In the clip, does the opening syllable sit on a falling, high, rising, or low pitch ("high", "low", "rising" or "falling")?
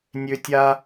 high